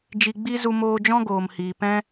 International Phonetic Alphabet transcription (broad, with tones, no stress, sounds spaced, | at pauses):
d͡ʒ i˧ ɡ͡b i˦ z u˧ m oː˧ d͡ʒ ɔ̃˦ ɡ oː˨ m h iː˨ p ɛ̃˦